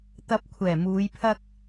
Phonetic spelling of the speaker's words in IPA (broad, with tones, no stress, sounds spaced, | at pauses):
t̪ ɐ˨˥ p̚ kʷʰ ɛː˨˩ m uː˨˧ j pʰ ɐ˥ k̚